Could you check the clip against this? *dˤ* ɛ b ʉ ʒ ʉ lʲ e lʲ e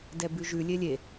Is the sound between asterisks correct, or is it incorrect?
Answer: incorrect: d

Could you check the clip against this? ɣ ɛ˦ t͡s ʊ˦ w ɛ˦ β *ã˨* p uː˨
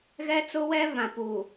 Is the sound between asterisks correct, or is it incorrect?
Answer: correct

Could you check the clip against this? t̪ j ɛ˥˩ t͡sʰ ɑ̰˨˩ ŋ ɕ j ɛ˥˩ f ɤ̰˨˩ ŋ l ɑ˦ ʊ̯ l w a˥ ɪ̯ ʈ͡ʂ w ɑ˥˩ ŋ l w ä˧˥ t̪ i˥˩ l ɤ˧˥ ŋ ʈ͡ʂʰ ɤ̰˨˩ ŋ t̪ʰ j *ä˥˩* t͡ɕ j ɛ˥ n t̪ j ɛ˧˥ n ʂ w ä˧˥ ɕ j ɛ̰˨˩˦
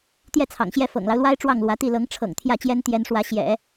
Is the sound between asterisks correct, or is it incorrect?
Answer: correct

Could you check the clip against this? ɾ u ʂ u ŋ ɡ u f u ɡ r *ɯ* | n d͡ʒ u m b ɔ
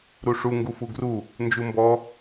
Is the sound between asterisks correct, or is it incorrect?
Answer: incorrect: u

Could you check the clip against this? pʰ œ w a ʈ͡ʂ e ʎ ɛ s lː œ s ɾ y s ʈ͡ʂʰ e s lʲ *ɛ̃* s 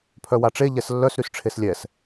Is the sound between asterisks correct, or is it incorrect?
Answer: incorrect: ɛ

